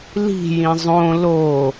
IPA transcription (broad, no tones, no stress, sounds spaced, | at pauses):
l i̤ j ĩ zˤ õ l o